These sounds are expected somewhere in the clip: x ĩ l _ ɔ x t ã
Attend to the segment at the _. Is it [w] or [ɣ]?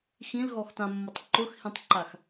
ɣ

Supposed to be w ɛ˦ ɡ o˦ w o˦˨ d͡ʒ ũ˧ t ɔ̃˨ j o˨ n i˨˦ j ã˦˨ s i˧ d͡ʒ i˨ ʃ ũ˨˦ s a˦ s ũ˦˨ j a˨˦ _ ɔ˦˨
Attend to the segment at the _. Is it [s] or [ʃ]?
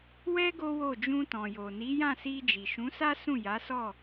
s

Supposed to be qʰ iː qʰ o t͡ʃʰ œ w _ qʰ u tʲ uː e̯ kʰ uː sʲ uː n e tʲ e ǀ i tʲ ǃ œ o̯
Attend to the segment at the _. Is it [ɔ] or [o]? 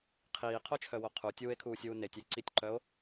o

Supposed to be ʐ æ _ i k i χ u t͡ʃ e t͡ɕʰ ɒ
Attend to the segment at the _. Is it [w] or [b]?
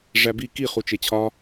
b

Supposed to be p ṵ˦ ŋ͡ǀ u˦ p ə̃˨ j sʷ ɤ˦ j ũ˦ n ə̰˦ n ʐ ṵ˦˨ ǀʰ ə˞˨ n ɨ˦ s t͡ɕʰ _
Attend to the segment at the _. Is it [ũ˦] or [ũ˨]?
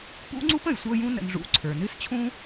ũ˦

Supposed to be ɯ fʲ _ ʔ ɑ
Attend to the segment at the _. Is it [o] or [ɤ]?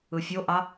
o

